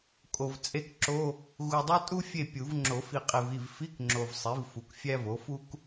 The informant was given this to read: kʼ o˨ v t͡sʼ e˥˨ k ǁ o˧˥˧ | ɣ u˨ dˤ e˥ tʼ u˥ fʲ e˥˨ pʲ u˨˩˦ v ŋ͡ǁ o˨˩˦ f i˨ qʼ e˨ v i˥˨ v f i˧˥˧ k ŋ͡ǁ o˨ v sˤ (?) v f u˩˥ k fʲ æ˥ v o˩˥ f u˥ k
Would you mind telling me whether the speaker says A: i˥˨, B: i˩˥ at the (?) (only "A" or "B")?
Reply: B